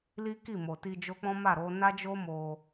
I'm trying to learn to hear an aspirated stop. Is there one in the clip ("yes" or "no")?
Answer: no